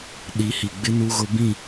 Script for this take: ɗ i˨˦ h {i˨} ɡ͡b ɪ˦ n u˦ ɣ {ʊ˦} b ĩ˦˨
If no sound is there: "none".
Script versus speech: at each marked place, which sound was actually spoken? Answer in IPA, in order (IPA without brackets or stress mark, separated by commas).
i˨, ʊ˦